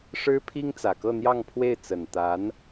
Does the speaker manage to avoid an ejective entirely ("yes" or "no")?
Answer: yes